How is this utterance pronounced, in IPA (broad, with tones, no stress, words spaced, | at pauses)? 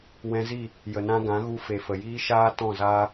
wɛ̃˧zi˦˨ | jə˨nã˧ɡã˨˦ɣu˧ fe˨fə˨jiː˦ʃaː˦ tɔ̃˦˨zaː˦